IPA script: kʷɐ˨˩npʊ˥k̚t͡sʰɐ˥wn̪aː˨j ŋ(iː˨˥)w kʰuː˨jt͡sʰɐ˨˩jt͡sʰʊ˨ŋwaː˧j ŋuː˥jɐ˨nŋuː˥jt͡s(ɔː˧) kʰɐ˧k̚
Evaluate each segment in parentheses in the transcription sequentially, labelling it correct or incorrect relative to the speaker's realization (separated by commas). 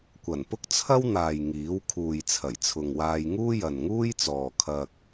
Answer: correct, incorrect